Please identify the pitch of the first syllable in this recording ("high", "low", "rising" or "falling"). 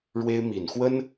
high